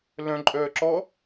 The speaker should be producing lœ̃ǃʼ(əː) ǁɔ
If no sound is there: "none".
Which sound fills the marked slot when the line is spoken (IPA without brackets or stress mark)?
œː